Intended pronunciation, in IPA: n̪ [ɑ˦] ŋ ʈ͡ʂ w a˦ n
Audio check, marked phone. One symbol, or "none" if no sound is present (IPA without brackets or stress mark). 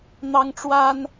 ɑ˦